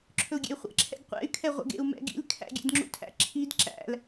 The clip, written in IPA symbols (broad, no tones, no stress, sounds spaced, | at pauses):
ǁʰ ɵ u̯ ɡʲ ḛ y̯ χʷ ɛ̰ ǁʰ ɛ̰ ɡ qʷ ɛ̰ y̯ kʰ ɛ ʁʷ ɛ̰ ɡ ḛ u̯ m ɛ̰ ɡ ḭ l kʰ æ̰ ɡʲ ɛ̰ d ŋ͡ǁ ṵ tʰ æ̰ ǁʰ i d ǁ æ̰ l